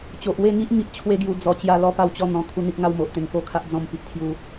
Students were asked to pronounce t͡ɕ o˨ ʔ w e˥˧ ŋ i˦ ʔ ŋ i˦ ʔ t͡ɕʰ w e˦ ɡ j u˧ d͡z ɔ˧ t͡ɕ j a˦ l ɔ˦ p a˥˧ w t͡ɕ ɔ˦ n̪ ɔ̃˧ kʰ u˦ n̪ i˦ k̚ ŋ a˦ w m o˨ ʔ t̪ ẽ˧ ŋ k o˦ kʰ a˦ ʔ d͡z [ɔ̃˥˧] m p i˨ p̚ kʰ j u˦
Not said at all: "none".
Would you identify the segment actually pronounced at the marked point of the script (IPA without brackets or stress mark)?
ɔ̃˥˧